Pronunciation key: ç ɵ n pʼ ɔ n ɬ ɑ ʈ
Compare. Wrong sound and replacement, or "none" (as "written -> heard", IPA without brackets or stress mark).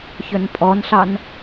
ʈ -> n